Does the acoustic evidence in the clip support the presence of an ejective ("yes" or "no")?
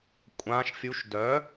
yes